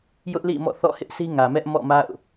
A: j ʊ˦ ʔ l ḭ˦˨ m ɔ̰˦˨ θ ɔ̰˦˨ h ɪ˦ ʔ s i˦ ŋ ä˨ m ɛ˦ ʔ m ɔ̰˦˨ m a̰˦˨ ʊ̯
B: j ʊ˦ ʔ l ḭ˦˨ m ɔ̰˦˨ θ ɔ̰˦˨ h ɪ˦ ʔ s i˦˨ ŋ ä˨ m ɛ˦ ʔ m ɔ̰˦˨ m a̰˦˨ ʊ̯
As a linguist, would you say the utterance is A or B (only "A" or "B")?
A